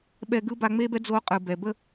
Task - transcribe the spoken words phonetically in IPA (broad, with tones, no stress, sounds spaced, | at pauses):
ɓ ɛ˦ ɡ ɯ˥ b a˦ ŋ͡m e˥ b ɛ˥ d͡z o˦ qʼ ɯ˨ b ɛ˨ b ə˦